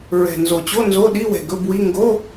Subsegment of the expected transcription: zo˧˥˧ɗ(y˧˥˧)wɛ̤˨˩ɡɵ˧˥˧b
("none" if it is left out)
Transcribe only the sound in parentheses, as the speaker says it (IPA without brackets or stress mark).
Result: i˧˥˧